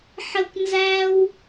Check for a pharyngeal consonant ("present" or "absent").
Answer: present